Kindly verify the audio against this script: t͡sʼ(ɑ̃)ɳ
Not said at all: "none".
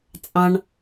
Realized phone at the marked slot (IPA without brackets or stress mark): ɑ̃